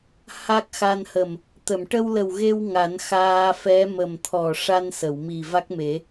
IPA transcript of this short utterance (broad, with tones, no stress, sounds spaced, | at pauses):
h a˦˥ k̚ x a˧ n h ə˨˩ m | t̪ ə˨˩˨ m ʈ ə˧ w l ə˨˩ w ɣ e˧ w ŋ a˨˩˦ n x aː˧ f ɛ˧˥ m ə˨˩ m t̪ʰ ɔ˨˩ ʂ a˧ n s ə˨˩˨ w m i˨˩ v a˦˥ k̚ m e˨˩˦